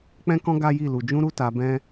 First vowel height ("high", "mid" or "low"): mid